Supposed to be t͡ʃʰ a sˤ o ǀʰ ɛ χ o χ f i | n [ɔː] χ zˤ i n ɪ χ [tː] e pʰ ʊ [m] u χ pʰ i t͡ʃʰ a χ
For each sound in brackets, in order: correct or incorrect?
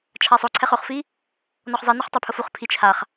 incorrect: ɔ, incorrect: tˤ, incorrect: f

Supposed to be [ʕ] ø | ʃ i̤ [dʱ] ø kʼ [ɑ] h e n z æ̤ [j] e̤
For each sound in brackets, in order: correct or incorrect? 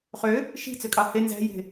incorrect: χ, incorrect: t͡s, correct, correct

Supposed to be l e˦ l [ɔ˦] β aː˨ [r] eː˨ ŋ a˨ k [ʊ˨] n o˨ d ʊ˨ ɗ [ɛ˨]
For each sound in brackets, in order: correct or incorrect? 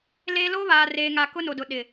incorrect: o˦, correct, incorrect: ʊ˦, incorrect: ɪ˨

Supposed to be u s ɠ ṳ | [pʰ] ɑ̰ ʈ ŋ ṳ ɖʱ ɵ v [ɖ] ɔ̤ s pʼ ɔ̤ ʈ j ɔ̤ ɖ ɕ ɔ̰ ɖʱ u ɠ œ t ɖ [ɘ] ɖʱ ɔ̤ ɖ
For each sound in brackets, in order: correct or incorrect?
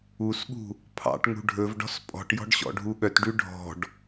correct, correct, incorrect: ʉ

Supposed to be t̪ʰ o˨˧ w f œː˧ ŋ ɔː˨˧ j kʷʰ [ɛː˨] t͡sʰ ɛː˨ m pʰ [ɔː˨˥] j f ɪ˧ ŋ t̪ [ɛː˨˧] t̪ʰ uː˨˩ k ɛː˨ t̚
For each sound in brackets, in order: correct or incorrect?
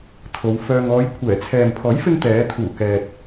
incorrect: ɛː˨˩, correct, correct

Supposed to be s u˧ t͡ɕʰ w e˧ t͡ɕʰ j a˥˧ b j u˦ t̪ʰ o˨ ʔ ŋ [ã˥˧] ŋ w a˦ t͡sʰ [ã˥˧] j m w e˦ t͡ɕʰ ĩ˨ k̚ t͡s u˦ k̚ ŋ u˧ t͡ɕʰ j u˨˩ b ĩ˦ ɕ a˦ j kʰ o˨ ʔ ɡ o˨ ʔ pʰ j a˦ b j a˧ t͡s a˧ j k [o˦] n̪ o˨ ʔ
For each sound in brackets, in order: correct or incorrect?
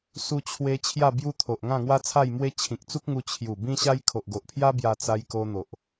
correct, incorrect: a˥˧, incorrect: o˧

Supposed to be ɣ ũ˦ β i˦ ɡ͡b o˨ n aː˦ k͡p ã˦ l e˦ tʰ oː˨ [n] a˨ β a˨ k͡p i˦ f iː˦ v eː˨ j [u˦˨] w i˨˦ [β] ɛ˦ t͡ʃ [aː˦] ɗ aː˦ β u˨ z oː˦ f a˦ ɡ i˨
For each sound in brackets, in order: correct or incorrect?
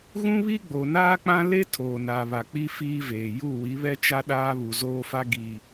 correct, correct, correct, incorrect: a˦

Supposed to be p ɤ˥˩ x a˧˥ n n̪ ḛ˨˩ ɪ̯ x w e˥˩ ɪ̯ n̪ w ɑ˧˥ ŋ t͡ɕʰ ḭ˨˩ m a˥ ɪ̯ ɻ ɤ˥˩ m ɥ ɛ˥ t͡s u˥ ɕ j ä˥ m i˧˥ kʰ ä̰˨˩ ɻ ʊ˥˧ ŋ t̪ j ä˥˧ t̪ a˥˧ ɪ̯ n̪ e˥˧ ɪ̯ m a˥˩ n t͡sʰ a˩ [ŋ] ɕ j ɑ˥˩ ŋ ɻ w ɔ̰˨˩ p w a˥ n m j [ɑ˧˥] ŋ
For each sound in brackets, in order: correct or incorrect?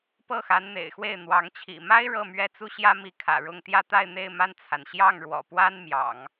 incorrect: n, incorrect: ɑ̰˨˩˦

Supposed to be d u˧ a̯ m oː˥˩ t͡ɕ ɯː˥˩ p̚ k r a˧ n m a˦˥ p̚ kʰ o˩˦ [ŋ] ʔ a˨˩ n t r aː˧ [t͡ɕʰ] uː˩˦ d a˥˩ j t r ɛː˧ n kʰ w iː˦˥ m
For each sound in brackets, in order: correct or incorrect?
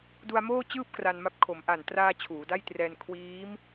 incorrect: m, correct

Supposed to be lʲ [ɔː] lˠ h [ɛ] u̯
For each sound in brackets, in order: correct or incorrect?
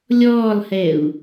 correct, correct

